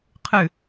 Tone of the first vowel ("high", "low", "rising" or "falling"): falling